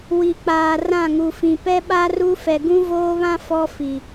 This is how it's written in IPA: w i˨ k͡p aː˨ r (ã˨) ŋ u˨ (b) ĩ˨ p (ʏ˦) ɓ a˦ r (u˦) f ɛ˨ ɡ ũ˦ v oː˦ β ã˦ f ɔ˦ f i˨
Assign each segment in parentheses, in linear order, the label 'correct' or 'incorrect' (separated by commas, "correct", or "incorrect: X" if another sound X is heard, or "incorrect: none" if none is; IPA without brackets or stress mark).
incorrect: ã˦˨, incorrect: f, incorrect: ɛ˦, correct